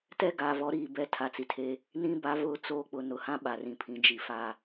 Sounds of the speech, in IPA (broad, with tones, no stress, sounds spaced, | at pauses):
t ɛ˦ ɡ a˨ v ɔ˨˦ ɾ iː˨ b ɛ˦ tʰ a˨ t͡s i˨ tʰ e˦ | n ĩ˦ b a˨˦ v ʊ˦˨ t͡s oː˦ k͡p ʊ˨ n ʊ˨ h ã˦ ɓ a˨ r ĩ˨ pʰ ĩ˨ d͡ʒ i˨ f a˦